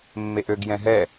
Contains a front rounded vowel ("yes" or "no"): yes